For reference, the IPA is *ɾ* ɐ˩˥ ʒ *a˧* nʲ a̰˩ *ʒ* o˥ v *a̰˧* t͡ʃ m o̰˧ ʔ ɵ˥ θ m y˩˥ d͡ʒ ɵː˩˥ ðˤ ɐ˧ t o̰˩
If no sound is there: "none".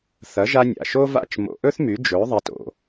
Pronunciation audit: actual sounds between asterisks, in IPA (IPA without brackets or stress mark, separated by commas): θ, a˧, ʃ, a̰˥˩